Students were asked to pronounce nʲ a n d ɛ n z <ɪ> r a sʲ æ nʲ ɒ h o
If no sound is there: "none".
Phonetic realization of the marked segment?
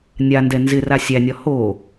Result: ɪ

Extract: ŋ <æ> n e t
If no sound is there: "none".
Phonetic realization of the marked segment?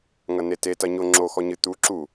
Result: ɐ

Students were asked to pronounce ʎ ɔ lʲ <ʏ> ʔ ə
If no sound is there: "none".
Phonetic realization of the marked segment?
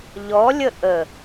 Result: ə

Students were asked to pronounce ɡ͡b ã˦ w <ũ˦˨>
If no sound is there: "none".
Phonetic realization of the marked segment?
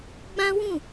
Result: ũ˦˨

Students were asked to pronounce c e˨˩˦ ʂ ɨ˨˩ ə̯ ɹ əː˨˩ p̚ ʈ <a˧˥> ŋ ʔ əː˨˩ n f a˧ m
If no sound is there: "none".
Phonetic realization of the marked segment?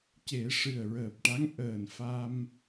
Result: a˧˥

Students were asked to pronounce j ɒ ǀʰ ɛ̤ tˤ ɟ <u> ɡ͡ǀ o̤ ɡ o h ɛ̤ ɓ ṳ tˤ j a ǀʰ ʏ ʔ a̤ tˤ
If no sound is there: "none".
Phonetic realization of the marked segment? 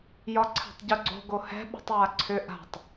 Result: u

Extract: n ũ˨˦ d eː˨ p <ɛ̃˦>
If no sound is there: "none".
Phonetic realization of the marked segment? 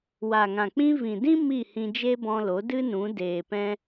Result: ɛ̃˦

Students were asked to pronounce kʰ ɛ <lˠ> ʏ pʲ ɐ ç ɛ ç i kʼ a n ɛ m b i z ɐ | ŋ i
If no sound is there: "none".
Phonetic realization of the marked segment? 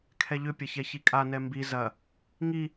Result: ʎ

